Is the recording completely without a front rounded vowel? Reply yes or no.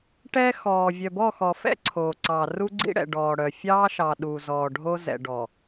no